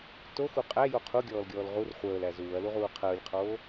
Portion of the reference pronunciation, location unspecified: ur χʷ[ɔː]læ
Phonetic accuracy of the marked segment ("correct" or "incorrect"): incorrect